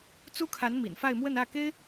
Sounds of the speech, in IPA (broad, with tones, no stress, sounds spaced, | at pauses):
t͡s u˥ kʰ a˧˥ n m ḭ˨˩ n f a˥˧ ɪ̯ m w ə˥˧ n ä˥˩ k e˥ ɪ̯